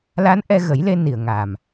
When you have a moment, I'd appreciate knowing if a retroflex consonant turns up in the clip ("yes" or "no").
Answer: no